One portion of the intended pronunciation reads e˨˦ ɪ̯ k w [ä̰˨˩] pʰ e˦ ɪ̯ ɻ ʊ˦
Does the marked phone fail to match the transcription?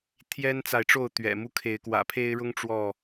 no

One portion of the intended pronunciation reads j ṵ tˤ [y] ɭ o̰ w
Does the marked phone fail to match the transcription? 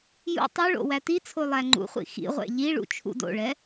no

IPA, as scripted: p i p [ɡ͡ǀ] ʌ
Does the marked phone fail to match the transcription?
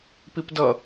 yes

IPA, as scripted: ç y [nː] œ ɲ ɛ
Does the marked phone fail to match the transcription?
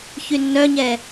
no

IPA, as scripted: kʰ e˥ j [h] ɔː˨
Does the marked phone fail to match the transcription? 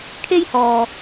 no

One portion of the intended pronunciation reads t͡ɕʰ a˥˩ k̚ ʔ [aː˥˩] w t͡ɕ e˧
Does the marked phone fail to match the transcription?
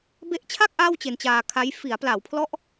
no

